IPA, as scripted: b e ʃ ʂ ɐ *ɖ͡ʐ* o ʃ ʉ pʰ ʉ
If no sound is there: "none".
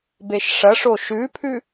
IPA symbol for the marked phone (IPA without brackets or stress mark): ʂ